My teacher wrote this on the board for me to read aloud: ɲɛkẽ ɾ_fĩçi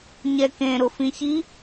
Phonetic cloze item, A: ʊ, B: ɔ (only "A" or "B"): A